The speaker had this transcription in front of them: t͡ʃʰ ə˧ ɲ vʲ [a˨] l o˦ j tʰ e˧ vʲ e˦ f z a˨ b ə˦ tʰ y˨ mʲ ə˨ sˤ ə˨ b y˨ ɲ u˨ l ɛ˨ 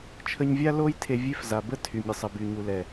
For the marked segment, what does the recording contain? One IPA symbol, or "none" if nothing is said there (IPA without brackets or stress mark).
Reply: a˦